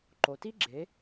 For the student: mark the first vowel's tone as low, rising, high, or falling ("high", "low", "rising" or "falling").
low